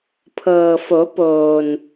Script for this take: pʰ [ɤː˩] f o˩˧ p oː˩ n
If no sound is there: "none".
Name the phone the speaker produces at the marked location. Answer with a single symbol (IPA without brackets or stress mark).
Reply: ɤː˩